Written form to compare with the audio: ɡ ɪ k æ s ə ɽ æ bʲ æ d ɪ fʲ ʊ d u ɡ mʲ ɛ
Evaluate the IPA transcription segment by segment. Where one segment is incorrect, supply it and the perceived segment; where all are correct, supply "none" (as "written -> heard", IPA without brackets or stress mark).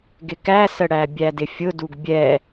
mʲ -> bʲ